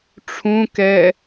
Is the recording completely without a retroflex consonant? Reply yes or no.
no